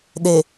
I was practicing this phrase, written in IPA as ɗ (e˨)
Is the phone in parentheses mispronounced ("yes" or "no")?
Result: no